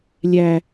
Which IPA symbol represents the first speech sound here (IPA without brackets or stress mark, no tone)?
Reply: lʲ